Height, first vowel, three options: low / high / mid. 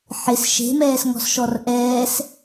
high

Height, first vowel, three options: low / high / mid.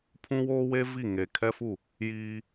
high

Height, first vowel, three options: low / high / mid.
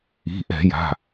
high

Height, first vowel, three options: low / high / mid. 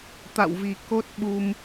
low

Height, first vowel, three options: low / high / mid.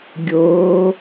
mid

